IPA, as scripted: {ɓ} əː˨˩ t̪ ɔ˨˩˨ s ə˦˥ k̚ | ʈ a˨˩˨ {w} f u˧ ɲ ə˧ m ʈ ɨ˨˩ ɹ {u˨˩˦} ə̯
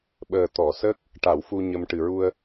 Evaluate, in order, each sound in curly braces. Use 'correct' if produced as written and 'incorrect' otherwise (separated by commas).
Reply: correct, correct, incorrect